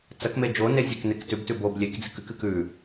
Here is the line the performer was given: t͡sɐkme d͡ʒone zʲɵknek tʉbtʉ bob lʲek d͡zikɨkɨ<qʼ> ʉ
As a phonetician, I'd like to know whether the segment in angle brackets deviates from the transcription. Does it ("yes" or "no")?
yes